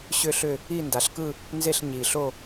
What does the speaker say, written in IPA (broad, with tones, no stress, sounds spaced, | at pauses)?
ɕ ʏ˦˨ ɬ ʏ˦˨ | i˦˨ n d a˩˧ ɬ k ɯ˦˨ | n z e˦˨ ɬ ɲ i˩ ɬ o˦˨